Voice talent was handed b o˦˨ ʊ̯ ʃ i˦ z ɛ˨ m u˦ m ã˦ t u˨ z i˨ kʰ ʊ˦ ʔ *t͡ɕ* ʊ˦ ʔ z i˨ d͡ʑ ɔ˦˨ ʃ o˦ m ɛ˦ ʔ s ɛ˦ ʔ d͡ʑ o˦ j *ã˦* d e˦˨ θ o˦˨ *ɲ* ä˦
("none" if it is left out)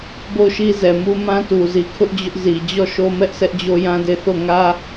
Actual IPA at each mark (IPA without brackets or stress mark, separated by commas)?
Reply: d͡ʑ, ã˦, ŋ